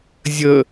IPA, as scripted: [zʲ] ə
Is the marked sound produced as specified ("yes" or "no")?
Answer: yes